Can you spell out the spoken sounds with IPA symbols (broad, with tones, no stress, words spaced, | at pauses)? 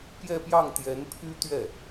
pjɛ˥˧pjɑ˥˩ŋ t̪jɛ˧˥npʰy˥t̪ɥɛ˥˩